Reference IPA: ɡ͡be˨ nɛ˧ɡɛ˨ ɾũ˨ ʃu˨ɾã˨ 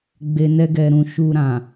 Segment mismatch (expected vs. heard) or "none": none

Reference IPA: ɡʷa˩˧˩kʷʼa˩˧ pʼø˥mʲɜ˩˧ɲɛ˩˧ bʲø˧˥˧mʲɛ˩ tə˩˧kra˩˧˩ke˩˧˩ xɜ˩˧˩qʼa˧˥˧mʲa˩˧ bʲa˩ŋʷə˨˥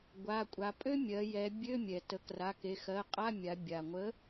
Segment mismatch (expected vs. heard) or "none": ɲ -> j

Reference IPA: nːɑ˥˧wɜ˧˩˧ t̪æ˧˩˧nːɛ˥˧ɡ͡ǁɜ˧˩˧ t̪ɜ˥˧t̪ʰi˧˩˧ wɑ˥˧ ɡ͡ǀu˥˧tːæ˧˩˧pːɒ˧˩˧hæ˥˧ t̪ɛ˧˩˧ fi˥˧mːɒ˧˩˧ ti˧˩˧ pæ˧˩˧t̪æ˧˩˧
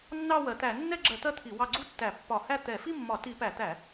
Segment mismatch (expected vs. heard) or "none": none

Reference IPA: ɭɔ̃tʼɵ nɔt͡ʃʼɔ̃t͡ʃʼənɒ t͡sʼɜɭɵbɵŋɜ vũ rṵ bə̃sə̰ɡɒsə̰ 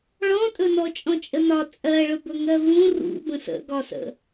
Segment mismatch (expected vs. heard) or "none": none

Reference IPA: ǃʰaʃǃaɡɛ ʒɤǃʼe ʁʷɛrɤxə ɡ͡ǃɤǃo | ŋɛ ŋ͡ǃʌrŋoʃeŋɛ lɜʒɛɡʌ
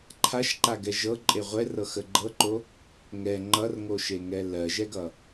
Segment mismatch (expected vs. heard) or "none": none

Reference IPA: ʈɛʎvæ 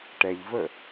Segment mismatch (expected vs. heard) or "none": æ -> ə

